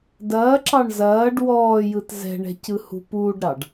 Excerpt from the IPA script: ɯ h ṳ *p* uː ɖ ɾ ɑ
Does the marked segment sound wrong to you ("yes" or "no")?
no